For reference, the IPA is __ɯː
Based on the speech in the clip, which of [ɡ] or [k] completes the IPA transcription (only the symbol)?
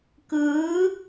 k